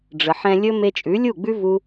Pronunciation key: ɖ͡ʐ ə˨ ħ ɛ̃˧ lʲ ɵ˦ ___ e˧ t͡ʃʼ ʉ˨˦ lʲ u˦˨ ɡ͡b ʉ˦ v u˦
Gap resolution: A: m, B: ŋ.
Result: A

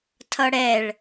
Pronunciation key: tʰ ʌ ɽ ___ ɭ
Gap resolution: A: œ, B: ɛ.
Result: B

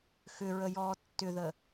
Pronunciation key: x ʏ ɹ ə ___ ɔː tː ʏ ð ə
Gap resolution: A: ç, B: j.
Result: B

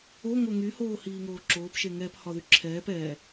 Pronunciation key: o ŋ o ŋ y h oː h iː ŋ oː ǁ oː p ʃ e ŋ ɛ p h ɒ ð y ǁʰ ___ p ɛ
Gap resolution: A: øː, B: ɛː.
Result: B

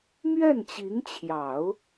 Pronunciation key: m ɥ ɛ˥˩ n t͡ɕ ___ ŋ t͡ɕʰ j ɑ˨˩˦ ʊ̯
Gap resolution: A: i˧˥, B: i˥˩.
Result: A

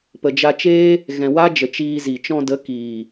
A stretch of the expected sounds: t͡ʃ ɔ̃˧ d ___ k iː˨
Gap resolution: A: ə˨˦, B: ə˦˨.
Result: A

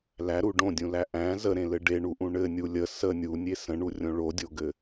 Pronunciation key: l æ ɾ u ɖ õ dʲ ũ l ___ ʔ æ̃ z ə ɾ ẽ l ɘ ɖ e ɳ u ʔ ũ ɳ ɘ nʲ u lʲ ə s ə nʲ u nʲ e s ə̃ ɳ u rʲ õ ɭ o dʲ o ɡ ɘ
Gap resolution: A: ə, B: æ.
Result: B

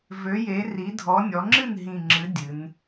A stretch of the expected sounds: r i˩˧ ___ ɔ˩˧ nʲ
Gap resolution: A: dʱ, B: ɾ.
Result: A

